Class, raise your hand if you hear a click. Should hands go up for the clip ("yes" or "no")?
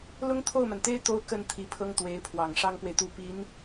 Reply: no